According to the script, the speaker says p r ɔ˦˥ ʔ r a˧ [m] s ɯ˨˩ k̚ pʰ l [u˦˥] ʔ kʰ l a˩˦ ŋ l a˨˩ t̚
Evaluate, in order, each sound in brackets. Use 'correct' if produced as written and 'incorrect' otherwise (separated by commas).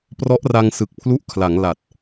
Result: incorrect, correct